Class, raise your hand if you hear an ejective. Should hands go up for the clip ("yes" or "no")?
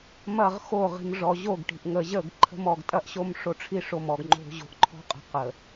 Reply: yes